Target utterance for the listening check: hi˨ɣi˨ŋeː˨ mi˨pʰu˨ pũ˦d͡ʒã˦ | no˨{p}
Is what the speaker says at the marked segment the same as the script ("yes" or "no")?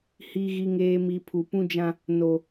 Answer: no